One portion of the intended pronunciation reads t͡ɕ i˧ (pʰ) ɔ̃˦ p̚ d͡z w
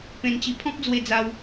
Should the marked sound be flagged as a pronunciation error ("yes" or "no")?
no